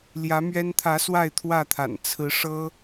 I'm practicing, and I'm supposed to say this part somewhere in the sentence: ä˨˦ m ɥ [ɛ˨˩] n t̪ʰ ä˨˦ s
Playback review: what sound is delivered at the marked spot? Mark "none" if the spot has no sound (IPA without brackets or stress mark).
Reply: ɛ˦